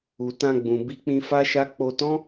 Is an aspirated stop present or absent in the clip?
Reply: absent